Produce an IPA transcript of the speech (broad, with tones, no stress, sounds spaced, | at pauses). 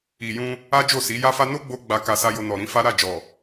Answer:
i˨ j ũ˧ | a˦ d͡ʒ o˦˨ s i˨˦ j a˦ f a˦ n o˦ ɡ͡b o˧ ɡ͡b a˦ k a˧ s a˦ j o˧ n ɔ˨ ɾ ĩ˨˦ f a˦ ɾ a˦˨ d͡ʒ ɔ˨